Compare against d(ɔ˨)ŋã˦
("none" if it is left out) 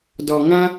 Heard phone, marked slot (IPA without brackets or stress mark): ɔ˨